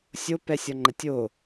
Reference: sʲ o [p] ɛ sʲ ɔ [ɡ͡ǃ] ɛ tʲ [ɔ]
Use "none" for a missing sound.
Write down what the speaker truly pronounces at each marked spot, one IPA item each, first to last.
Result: p, ŋ͡ǃ, o

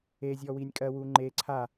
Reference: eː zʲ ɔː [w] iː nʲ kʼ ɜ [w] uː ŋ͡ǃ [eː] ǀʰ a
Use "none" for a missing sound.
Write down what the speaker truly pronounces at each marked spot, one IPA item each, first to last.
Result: w, w, eː

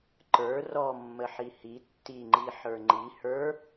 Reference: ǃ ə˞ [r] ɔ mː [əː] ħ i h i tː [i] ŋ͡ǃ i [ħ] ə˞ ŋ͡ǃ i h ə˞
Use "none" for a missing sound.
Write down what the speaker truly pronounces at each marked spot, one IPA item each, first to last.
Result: r, ə, i, ħ

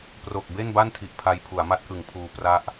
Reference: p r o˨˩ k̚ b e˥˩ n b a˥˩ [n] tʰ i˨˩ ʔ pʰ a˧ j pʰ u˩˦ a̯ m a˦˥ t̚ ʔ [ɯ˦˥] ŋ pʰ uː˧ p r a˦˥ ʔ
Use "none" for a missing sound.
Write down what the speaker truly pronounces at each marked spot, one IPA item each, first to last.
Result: n, ɯ˩˦

